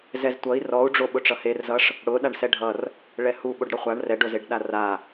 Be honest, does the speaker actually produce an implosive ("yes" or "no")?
yes